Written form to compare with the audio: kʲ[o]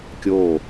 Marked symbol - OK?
yes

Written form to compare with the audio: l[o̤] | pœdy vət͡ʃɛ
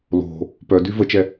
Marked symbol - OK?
yes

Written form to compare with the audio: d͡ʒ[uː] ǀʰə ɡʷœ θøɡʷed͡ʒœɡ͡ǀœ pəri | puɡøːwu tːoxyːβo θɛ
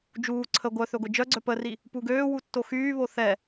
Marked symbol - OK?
yes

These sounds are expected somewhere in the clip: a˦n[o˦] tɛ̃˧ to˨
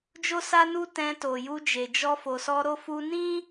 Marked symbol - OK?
no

